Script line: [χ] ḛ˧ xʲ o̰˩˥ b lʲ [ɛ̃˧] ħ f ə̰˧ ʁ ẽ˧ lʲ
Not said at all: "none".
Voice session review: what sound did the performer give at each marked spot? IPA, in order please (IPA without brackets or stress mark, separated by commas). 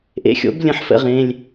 ʔ, ə̃˧